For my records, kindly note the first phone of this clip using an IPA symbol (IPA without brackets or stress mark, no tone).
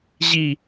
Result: ʑ